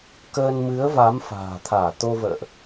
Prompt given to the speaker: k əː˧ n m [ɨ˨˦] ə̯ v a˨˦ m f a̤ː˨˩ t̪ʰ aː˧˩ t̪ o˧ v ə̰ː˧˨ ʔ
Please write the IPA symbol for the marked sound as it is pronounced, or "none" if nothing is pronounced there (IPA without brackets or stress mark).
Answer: ɨ˨˦